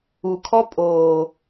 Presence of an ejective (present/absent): present